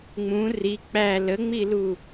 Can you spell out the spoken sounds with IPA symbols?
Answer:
ŋ͡mũ ri k͡pæ ləŋ͡milu

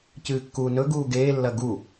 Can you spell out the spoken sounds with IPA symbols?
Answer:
cɨːkːuːnɵɡuː ɡeːlːɐ ɡu

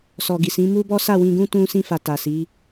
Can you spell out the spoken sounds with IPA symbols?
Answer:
sɔ˨ɡi˨sĩ˨˦ mu˦bɔ˦sa˦˨ wĩ˧ɡũ˦ tũ˧ sĩ˧fa˨ ta˨si˨˦

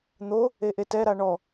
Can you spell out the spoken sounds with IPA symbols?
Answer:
n̪o | eʔetɛ ɾaɳɔ

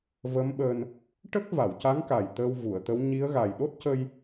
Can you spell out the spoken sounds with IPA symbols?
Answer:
və˧˥mɓəː˧n | ʈə˦˥k̚ va˨˩˨wca˧˥ŋka˨˩j t̪əː˧wvu˨˩˨ə̯t̪ə˧˥w ɲi˧˥ə̯ɣa˨˩j ɗo˦˥t̚cə˧j

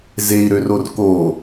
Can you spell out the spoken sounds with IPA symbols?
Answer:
zei̯ɾøror ko

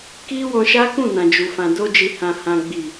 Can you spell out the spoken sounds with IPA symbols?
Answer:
ki˦wɔ̃˧ʃa˦kũ˦˨ nã˨d͡ʒu˨fã˨ do˧d͡ʒi˨hã˨ hã˨ɡ͡bi˨

